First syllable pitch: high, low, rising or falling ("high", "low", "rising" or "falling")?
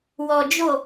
low